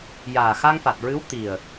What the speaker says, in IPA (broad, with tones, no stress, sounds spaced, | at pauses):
j aː˨˩ x a˧ ŋ f a˨˩ t̚ ɹ ɨ˧˥ w t̪ i˨˩ ə̯